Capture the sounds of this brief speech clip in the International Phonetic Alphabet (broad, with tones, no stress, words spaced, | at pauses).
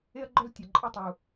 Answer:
e˦ɐ̯ɡ͡ǃœ˦ltʲɐ˨ ǃʼœ˦tˤu˨